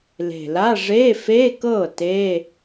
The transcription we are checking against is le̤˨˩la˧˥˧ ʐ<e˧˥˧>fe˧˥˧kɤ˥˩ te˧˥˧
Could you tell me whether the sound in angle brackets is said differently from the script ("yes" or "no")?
no